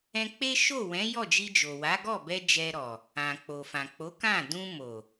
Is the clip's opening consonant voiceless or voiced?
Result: voiceless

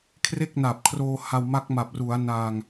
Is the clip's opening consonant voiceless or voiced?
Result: voiceless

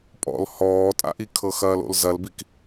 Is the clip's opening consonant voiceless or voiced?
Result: voiceless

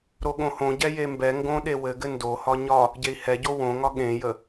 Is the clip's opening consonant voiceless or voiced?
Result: voiced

